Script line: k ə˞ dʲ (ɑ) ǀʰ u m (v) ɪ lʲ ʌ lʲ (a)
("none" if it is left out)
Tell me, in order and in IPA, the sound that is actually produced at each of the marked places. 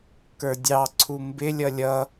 ɑ, b, ʌ

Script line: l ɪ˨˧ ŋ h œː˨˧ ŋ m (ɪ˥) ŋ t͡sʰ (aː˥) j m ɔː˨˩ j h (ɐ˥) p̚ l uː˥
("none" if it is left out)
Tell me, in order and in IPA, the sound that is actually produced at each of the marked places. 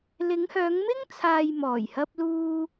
ɪ˥, aː˨, ɐ˥

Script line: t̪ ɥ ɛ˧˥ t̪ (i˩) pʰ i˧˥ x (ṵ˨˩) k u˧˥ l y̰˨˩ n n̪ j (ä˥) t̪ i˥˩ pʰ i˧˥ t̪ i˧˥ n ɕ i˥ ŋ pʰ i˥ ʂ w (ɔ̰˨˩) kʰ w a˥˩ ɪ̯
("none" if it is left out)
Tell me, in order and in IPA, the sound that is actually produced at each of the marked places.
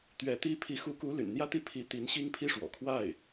i˥, u˧˥, ä˥, ɔ̰˨˩

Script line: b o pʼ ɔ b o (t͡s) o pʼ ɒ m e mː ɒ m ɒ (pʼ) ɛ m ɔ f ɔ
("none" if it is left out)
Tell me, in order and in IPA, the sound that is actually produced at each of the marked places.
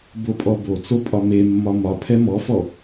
t͡s, pʰ

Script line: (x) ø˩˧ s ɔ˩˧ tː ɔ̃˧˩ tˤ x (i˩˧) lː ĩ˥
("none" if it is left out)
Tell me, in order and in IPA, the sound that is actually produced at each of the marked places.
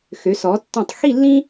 x, i˥˧

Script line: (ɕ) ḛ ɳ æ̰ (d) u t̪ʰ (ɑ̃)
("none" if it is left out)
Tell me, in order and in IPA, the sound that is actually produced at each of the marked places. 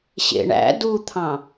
ɕ, d, ɑ̃

